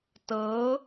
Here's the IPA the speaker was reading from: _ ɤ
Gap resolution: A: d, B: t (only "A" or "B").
B